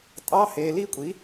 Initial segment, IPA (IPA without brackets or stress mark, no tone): tʼ